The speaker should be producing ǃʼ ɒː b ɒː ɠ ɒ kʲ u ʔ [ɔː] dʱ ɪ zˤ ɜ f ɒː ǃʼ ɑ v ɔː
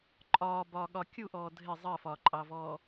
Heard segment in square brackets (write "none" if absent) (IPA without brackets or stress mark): ɔː